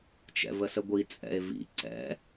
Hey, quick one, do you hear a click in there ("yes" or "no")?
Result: yes